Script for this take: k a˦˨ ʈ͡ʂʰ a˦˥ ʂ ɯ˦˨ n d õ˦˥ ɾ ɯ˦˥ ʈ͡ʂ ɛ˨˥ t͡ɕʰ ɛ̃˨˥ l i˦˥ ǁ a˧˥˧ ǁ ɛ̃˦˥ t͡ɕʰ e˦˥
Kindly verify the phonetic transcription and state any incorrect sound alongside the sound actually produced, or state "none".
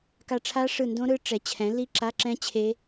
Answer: none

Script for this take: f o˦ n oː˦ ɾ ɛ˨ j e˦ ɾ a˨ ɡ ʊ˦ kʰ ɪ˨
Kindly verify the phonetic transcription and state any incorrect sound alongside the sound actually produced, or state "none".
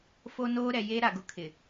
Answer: none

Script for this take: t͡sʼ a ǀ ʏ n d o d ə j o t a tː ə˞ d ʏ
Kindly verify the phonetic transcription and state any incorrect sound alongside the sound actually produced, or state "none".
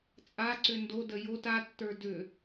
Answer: none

